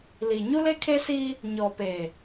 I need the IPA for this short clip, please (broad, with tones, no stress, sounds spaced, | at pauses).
l i˨ ɲ u˦ l e˦ kʰ e˦ s iː˦ | ɲ ɔ˨ p eː˨